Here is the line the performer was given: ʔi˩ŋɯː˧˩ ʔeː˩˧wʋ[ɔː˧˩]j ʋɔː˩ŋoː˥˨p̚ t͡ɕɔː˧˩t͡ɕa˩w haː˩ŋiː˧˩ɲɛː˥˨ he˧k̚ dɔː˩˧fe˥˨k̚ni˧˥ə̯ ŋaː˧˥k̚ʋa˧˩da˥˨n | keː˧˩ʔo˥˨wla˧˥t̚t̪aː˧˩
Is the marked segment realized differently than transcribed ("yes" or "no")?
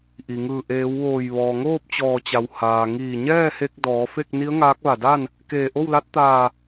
yes